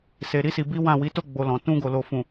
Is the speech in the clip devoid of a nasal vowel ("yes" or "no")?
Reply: no